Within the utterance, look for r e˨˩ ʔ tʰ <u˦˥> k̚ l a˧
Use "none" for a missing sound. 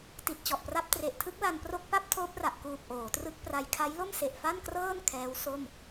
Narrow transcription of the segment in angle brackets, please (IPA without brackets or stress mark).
ɯ˦˥